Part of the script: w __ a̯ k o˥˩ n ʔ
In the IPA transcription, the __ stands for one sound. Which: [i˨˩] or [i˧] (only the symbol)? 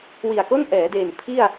i˨˩